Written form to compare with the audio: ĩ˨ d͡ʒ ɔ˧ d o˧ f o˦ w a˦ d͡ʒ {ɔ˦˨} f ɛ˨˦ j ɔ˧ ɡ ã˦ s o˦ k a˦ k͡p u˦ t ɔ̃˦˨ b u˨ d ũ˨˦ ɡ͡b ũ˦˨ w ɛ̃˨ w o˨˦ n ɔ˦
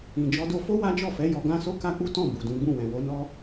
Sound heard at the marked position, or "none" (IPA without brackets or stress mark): ɔ˦˨